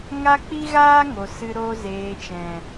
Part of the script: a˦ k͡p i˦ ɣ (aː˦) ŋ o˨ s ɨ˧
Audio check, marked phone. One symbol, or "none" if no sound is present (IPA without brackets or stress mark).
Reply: aː˦